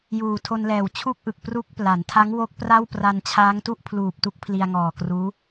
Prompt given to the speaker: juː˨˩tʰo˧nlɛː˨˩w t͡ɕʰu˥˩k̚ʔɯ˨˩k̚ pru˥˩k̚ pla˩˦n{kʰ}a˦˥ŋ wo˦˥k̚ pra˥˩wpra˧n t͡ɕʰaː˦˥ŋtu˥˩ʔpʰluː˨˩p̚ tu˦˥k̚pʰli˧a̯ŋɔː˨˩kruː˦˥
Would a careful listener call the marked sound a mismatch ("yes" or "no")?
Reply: yes